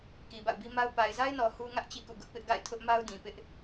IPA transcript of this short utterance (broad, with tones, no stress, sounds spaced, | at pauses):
k i˨ b a̰˦˨ ʊ̯ b i˦ m a˦ ʊ̯ p a˨ ɪ̯ z a˦ ɪ̯ n ɔ˨ h u˦ ŋ ä˦ ʔ t͡ɕ ḭ˦˨ k ṵ˦˨ ɡ ʊ˦ ʔ p ɪ˦ ʔ ɡ a̰˦˨ ɪ̯ tʰ ʊ˦ ʔ m a˦ ʊ̯ d ĩ˨ p ɪ˦ ʔ